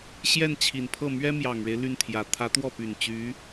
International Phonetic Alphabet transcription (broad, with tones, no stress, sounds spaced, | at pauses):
ɕ j ɛ˥˩ n t͡ɕʰ i˨˩ n pʰ ɤ˥˩ m ɥ ɛ˥ m j ɑ˨˩ ŋ ɻ e˦ ɪ̯ l y˥˩ n t̪ʰ j ä˨˩ t̪ʰ ä˧˥ t̪ w ɔ˥˩ p y˨˩ n t͡ɕ y˧˥